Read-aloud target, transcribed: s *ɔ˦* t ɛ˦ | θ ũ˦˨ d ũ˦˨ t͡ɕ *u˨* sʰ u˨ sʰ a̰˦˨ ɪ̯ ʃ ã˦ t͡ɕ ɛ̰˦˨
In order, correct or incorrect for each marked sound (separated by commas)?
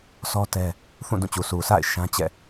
correct, correct